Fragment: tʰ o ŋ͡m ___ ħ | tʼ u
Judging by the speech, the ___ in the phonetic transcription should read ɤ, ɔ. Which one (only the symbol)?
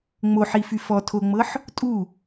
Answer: ɤ